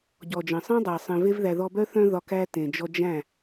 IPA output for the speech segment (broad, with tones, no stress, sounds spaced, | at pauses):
ɟ ɔ˨ d͡ʒ ə̃˨ sˤ ẽ˦ dˤ æ˨ sˤ ẽ˨ v e˧ v ð æ˨ ð ɔ˧ b œ˦ θ œ̃˧ ð ɒ˨ k æ˦ t ẽ˨ d͡ʒ ɔ˧ d͡ʒ æ̃˦˨